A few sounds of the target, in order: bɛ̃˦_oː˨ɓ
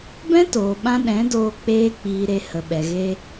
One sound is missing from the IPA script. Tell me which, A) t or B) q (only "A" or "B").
A